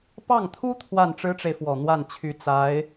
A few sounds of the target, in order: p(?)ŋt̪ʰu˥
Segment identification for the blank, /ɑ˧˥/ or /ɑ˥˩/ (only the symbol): ɑ˥˩